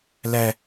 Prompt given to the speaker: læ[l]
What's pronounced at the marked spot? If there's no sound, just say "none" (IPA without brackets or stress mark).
none